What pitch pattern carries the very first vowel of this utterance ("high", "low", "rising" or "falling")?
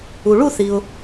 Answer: low